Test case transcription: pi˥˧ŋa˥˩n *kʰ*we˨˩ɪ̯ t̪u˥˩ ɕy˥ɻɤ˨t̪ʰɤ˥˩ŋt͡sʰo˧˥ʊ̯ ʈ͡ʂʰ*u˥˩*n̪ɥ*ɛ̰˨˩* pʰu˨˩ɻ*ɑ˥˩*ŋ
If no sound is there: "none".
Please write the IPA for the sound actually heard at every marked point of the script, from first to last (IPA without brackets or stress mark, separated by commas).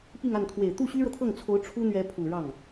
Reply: kʰ, u˥, ɛ˧˥, ɑ˥˩